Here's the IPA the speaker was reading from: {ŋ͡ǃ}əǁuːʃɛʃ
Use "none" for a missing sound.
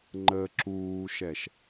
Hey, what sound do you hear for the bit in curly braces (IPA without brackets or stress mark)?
ŋ͡ǃ